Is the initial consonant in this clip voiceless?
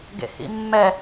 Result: no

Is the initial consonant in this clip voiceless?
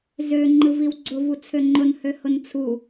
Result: no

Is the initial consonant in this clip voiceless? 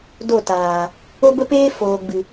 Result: no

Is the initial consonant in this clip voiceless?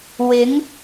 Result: no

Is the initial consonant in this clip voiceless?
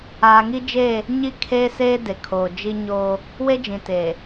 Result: no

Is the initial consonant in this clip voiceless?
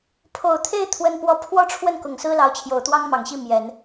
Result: yes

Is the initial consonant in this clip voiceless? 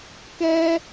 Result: yes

